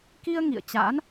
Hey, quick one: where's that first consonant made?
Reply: velum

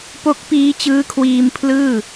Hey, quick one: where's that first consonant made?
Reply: lips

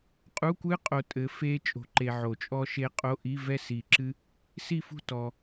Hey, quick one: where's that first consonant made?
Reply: uvula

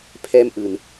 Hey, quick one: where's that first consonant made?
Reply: lips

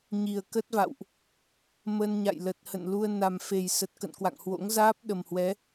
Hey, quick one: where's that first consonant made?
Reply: palate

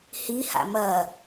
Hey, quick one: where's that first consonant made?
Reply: throat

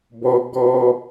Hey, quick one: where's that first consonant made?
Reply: lips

